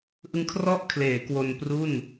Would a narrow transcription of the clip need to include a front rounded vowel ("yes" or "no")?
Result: no